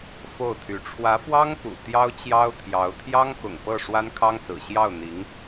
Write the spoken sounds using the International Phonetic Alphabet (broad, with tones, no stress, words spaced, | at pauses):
fo˥˩ʊ̯t̪ʰy˧˥ ʈ͡ʂʰwä˧˥fwɑ˥ŋ kṵ˨˩t̪jɑ˥ʊ̯ t͡ɕjɑ˥ʊ̯t̪ʰjɑ˧˥ʊ̯ t̪ʰjɑ˥ŋkʊ̰˨˩ŋpɤ˥˩ ʂwa˥nkʰɑ˥ŋ sɹ̩˨˩ɕjɑ˥˩ʊ̯n̪i˧˥ŋ